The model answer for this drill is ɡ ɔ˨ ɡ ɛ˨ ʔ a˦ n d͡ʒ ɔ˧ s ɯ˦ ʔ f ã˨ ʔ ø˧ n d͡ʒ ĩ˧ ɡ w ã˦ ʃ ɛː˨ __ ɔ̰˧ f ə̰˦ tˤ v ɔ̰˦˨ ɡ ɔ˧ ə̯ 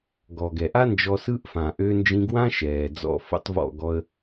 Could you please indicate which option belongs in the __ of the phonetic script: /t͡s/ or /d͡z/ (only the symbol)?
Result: d͡z